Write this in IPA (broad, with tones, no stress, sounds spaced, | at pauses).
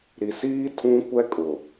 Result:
ɾ i˨ s iː˦ tʰ ũ˦ kʷ ɛ˦ kʼ ʊ˨